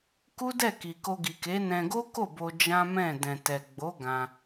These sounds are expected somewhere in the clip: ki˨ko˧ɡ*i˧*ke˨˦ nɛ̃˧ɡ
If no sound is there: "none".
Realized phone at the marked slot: i˨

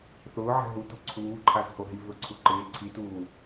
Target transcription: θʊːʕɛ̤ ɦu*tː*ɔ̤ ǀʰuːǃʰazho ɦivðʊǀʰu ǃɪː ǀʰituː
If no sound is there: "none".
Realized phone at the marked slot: t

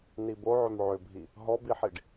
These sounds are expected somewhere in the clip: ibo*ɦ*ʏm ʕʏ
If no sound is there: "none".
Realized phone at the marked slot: ʕ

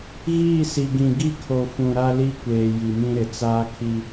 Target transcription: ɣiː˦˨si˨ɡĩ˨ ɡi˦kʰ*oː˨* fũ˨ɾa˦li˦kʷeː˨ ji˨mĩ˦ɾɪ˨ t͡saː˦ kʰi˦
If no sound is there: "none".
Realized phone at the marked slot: o˨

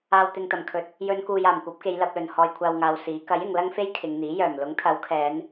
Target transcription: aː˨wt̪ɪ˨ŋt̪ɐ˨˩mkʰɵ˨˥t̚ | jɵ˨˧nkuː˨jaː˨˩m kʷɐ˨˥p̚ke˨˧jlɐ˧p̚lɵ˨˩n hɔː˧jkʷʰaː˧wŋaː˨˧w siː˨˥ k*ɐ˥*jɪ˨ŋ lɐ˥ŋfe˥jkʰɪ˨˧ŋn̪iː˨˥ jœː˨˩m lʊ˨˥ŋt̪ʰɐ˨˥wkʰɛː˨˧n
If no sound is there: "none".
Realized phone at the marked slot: ɐ˨˥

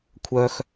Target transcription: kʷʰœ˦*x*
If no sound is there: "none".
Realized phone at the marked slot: x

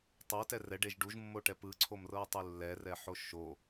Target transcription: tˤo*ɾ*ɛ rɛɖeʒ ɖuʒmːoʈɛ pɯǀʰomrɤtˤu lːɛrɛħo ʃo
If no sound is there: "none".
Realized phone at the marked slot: t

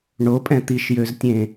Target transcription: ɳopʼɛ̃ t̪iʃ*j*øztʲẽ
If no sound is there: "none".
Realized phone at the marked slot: j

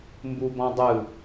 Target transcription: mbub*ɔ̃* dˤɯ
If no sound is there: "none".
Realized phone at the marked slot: ɔ̃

